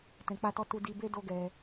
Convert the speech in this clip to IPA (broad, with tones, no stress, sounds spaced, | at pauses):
t ɛ̃˧ k͡p a˦ t ɔ˦ t u˦ d i˧ b e˦ d o˦ ɡ ɛ˧